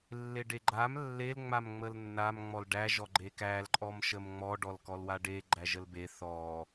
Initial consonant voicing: voiced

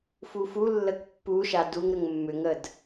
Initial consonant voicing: voiceless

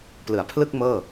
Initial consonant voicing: voiceless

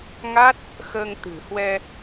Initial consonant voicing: voiced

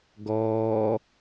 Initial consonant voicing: voiced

